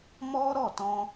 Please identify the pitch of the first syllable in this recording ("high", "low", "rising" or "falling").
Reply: high